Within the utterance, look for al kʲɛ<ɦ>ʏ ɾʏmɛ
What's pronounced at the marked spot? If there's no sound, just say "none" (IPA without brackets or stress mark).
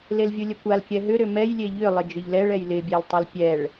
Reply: ɦ